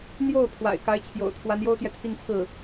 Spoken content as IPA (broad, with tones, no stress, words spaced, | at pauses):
n̪jo˥˩ʊ̯ pʰwa̰˨˩ɪ̯ka˧˥ɪ̯t͡ɕʰjo̰˨˩ʊ̯ t̪ʰwa˧˥njo˥ʊ̯t̪jɛ˨ t̪ʰi˥˧ŋt͡sʰɹ̩˥˩